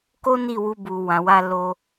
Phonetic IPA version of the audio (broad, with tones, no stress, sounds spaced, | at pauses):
k o˦ n i˦˨ w u˧ b u˨ w ã˨ w a˧ l o˧